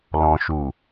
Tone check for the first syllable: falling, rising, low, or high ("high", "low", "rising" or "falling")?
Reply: low